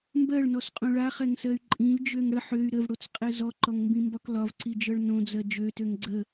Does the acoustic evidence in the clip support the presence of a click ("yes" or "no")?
yes